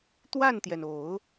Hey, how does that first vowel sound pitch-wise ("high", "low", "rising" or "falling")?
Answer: falling